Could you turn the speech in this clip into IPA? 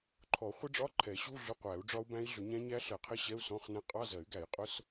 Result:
ǃʰ ɔ˨˩˦ χʷ ɪ˦˥ ɖ͡ʐ ɒ˧˥˧ ǃʰ ɛ˨˩˦ ɕ u˧˥˧ ɮ ʊ˧˥˧ qʷ æ˨˩˦ u̯ ɖ͡ʐ ɒ˦˥ u̯ b æ̃˦˥ i̯ ɮ ʊ˨˩˦ ɲ æ̃˦˥ ɲ æ˦˥ ɬ ɜ˨˩˦ qʰ ɪ˧˥˧ ɕ ɛ˧˥˧ u̯ s ɔ̃˧˥˧ χ n æ̃˦˥ qʼ ɑ˧˥˧ z ɜ˨˩˦ y̯ ɡ æ˨˩˦ j qʼ ʊ˧˥˧ s

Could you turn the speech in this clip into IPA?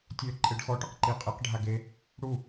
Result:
tʲ ø ǃʼ e ɖ x ɔ ʈ ʏ q ǃ i qʼ i q ɖʱ a ɡ e | ɽ u

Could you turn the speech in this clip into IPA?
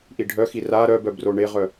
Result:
ʔ i ɖʱ œ x i r a ɾ œ b œ b r o ɳ e ʁ œ

